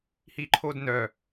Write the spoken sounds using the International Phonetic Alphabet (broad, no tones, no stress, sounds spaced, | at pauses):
h i ǃʰ o d n œ